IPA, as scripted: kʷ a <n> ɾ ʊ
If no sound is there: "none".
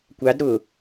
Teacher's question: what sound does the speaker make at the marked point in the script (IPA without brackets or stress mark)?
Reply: d